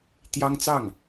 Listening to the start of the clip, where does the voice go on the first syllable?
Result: high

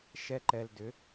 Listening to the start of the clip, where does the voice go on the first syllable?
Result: high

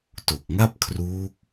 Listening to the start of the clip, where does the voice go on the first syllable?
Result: low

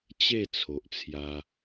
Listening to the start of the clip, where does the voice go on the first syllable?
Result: falling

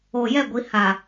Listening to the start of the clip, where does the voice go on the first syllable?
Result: low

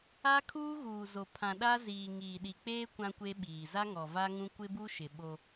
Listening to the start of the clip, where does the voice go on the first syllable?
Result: high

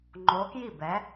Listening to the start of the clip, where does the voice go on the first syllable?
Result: rising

